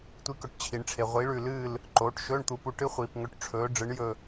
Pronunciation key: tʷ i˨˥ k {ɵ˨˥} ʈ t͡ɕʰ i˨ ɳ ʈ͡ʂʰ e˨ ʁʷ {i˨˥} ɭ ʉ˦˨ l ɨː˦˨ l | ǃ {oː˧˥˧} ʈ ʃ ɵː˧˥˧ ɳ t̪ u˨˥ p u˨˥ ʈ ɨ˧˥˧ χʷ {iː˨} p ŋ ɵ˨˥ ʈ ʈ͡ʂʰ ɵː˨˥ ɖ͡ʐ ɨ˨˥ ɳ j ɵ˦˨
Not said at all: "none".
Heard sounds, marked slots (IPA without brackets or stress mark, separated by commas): ɵ˨, i˨˥, oː˨˥, iː˨